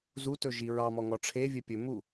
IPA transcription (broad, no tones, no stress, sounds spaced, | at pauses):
z u t ɵ ʒ i ɹ ɑ m ɔ ŋ ɔ ʈ͡ʂʰ e vʲ ɘ pʲ ɵ m u